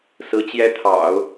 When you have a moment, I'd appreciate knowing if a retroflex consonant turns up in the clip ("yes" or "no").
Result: no